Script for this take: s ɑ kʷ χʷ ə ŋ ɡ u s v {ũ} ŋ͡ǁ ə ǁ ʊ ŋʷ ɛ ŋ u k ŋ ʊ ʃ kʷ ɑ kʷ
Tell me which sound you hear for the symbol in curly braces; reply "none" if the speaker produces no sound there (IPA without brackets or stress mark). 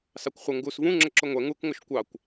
ũ